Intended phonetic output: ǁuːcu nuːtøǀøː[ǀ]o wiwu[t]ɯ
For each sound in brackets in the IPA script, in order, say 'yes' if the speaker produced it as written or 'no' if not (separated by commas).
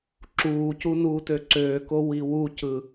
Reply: no, no